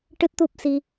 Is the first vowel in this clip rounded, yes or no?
no